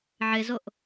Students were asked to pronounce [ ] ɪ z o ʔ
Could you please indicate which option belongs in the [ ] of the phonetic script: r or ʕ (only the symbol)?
ʕ